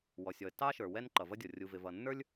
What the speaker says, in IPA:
w ɔ˩ sʲ ɔ˩ ə̯ t ɑ˥ ʃ ə˞˩ w ɛ˥ n ǃ ʌ˩ v ʌ˥ dʲ ɔ˩ rʲ u˩ v ɪ˩ v ʌ˩ nː ə˞˥ lʲ

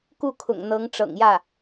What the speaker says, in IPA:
k u˥˩ kʰ ʊ̰˨˩ ŋ n̪ ɤ˧˥ ŋ ʈ͡ʂ ɤ̰˨˩ ŋ j ä˥˩

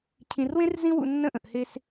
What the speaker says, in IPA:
cʰ ĩ˨ r w ẽ˦ r z ĩ˦ w ṵ˧ nː ə̃˦˨ ʔ ə̃˨ ʔ h e˧ s

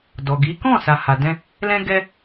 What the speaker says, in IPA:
d ɔ˨ ɡ i˨˦ k ɔ̃˦˨ s a˨ h a˨ d ɛ̃˧ | l ɛ̃˦ ɡ ɛ˦

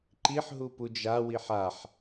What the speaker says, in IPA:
ǃ i ħ ɦ u p u d͡ʒ a w i ħ a ħ

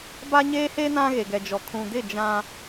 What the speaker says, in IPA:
b a˦ ɲ eː˦ h e˦ n ã˦ ɣ e˨ ɡ ɛ˨ d͡ʒ ɔ˨ kʰ ũ˨ d ɪ˦˨ d͡ʒ ã˦

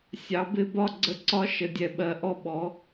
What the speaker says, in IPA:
sʲ ɑ˩˥ b ɪ˧˥˧ b ɒ˥˧ ɡ͡ǀ ə˧˥˧ ǀ ɒ˦˥ ʃ ə˨ dʲ ɛ˨ ɓ ɜ˩˥ ʔ ɔ˥˩ ɓ ɔ˩˥

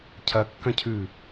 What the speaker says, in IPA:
cʰ ɐ kː ɐ̃ cʰ ʉ

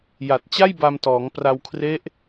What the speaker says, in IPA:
j a˨˩ t̚ t͡ɕ a˥˩ j b a˧ m t ɔː˩˦ ŋ p r a˧ w kʰ r e˦˥ ʔ

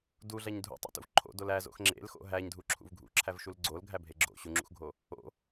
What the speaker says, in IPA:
d u ɮ æ ɲ dʱ ṵ tˤ o̰ t ṵ v ǃʰ o̰ d o l æ z o̰ x ŋ͡ǁ ḛ l x o̰ ɦ æ ɲ dʱ u ǁʰ ṵ v ɡʱ ṵ ǁʰ æ v ʃ u l ɡ͡ǀ o l ɡʱ æ bʱ e ɡ͡ǁ o̰ ɕ u ŋ͡ǁ ṵ x ɡʱ o | o̰

